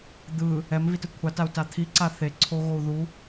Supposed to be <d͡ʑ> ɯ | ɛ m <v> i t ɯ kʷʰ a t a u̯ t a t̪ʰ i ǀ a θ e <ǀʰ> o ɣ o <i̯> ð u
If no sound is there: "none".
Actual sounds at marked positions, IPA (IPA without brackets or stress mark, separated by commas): d̪, v, ǀʰ, u̯